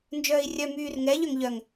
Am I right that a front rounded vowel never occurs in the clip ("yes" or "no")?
no